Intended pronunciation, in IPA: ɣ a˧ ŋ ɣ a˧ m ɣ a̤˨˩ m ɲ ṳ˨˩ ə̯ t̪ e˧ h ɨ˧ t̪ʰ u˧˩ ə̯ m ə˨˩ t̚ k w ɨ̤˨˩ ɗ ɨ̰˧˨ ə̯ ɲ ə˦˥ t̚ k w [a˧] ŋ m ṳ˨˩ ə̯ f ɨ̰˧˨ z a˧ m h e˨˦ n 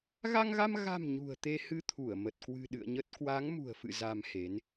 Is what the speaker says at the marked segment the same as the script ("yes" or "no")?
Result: no